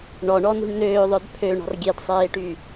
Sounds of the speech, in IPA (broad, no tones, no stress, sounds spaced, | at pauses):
ɳ ɔ ɳ ɔ n ṳ ɳ n̪ øː ðˤ œ d pʰ ø ɳ ɔ̤ r ɡʲ e d sˤ eː ʈ y